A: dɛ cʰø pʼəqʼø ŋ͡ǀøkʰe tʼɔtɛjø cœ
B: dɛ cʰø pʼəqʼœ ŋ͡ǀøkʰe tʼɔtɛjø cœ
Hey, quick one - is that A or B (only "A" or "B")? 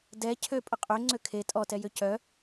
A